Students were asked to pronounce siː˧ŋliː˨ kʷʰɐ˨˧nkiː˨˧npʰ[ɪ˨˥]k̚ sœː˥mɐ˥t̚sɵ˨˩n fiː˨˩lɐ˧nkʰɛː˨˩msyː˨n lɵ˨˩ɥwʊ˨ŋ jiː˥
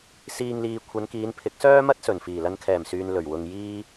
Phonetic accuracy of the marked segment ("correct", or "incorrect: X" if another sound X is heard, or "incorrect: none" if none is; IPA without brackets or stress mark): correct